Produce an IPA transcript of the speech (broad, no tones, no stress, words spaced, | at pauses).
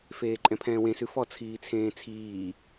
feːǃʼɛ̃pʰɛ̃ːwẽ sʉfɔ t͡sʰiːt͡sʰẽːt͡sʰiː